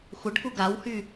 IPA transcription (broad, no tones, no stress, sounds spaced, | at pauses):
xʷ ə ɖ k u ɡ a w h y